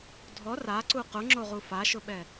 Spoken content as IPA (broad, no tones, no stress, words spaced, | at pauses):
dʱɔ raǀu qʊŋ͡ǁoʁu faʃʊɓɛ